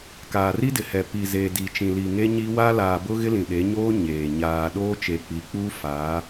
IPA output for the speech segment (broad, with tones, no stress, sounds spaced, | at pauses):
k aː˨ r i˦ d ɪ˨ h ɛ˨ p i˨ z eː˨ d i˨ t͡ʃ ĩ˨ l i˨ ŋ e˦ ɲ i˦ w a˦ l aː˨ b ʊ˦ ɣ ɪ˦ l ĩ˨ ɗ e˨˦ ɲ oː˦ ɲ eː˨ ɲ aː˨ ɗ oː˦ t͡ʃ e˨ k͡p i˨ k͡p uː˦ f aː˨˦